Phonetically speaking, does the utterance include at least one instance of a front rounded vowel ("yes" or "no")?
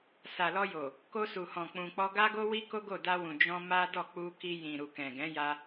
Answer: no